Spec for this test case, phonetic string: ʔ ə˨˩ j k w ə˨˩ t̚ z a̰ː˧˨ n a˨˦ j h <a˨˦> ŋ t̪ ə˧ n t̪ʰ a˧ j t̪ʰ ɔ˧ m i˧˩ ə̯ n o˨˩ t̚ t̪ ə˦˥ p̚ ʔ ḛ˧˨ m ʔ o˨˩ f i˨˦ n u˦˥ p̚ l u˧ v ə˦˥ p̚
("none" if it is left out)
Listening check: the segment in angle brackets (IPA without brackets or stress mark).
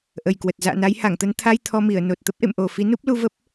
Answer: a˧˩